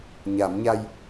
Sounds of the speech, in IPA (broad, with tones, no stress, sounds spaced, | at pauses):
ɲ a˨˩˦ m ɲ a˧ j